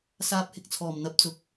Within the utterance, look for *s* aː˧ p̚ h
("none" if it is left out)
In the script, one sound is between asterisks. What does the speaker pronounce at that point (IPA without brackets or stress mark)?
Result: s